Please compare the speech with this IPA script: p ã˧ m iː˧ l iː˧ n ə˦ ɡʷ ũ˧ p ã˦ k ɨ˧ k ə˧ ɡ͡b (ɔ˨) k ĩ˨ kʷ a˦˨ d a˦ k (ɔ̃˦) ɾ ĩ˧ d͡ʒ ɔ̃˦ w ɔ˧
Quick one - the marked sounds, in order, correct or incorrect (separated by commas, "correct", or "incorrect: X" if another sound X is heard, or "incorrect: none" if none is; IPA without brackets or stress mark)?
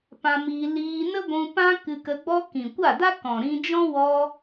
incorrect: ɔ˦, incorrect: ɔ̃˨